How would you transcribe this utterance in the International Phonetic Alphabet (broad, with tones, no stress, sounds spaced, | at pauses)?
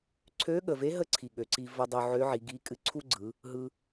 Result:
ǀʰ ø˧˥ ɠ ə˩ v e˧˥ ɦ ə˧˥ ǀʰ i˩ ɠ ø˩ ǀ i˧ v ə˧ dˤ ø˧ ʕ ø˧˥ ʕ i˩˧ ɡ i˧˥ kʼ ɨ˧˥ ǀʰ u˥ ɡ͡ǀ ɯ˩˧ | ɦ ɯ˧